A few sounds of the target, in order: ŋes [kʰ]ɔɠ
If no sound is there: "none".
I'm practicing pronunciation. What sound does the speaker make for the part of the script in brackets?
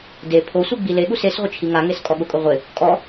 kʼ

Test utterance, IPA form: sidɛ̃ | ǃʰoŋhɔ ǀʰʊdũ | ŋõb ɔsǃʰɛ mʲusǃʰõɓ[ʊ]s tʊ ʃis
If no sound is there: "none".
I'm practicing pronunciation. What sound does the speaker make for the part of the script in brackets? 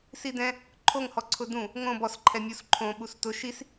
u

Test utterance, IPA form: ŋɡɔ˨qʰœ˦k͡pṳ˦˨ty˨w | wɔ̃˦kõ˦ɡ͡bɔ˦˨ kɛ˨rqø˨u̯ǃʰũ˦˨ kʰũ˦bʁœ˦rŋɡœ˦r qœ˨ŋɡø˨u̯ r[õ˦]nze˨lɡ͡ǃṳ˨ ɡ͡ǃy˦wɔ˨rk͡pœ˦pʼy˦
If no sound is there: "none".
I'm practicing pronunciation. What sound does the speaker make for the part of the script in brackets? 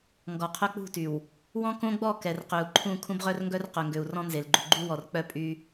ɔ̃˦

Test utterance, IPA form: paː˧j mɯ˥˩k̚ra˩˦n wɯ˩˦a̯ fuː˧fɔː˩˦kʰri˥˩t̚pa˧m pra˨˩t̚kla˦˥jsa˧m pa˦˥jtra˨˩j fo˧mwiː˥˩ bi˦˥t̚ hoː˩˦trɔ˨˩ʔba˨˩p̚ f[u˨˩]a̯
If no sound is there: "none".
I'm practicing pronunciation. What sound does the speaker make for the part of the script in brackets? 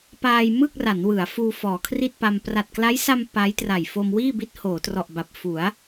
u˩˦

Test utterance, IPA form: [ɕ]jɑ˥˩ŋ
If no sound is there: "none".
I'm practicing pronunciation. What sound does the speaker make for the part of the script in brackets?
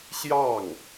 ɕ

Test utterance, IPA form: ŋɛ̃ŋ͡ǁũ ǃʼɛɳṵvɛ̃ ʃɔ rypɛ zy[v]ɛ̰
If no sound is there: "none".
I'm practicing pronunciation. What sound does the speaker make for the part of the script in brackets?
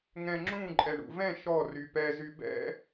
b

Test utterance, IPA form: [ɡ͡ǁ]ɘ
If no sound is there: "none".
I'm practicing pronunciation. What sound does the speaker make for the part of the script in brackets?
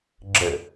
ɡ͡ǁ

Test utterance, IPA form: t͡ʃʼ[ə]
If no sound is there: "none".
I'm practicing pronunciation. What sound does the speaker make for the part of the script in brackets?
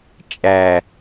æ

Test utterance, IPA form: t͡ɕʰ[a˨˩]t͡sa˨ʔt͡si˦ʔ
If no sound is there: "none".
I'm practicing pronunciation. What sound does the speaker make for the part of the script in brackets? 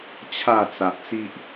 a˥˧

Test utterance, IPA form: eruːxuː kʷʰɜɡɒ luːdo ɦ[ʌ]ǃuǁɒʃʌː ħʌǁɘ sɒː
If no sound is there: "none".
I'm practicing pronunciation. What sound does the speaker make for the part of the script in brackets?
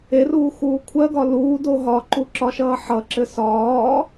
ɒ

